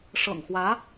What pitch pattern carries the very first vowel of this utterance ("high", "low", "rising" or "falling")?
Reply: low